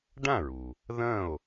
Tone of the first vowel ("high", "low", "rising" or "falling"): falling